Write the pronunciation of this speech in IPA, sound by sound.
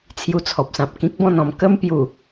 t͡sʰju˧t͡sʰɔ˨p̚sã˨p̚ kĩ˦k̚bɔ̃˥˧nɔ̃˧m kə˦mpju˨˩

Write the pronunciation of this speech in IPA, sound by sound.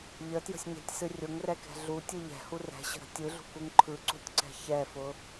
ʎətjə̤sʲɲɛ̤tʲsɨ rʲʊŋrɛkɛ̤ ɮutʲɯ ʎɛ̤hu rɛ̤ɕə̤ɾə̤ tʲɯɮṳkuŋ ǃʰɯǀṳtʲǀɛ̤ çɛfʊ

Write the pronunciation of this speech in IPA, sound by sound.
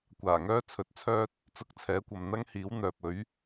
kʷaː˨˩ŋœː˥ t͡sʰɵ˨˥t̚t͡sʰœː˥t̚ | t͡sʊ˧k̚ t͡sʰɛː˨˥kʷɐ˨m n̪ɐ˥ŋhiː˨˥wn̪œː˨p̚ɵ˨˥ɥ

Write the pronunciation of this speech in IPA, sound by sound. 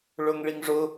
ɭʊŋɭiŋʐʊ

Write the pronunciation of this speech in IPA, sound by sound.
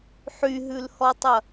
ħyɦʉlhɔtˤɐ

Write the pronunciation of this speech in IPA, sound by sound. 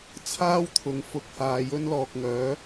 t͡sʰaː˥wt̪ʰʊ˨ŋ fʊ˨k̚haː˨ jɵ˥nlɔː˨k̚ ŋœː˨˥

